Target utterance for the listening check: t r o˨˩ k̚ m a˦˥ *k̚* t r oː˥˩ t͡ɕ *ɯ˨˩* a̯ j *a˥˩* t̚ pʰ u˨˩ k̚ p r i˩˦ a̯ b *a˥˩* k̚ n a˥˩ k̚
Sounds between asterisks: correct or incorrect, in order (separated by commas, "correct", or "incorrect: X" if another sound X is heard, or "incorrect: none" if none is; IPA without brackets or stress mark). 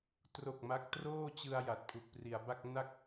correct, incorrect: ɯ˧, incorrect: a˨˩, correct